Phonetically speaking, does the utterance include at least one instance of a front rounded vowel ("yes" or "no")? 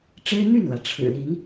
yes